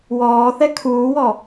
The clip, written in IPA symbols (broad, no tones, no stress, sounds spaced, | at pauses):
w ɔː θ ɛ kʰ uː w ɔ